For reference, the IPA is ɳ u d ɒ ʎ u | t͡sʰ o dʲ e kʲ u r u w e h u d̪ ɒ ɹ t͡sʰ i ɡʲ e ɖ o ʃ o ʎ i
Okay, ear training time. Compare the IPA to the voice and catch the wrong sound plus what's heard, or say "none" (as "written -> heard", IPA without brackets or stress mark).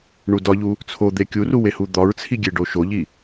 dʲ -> d̪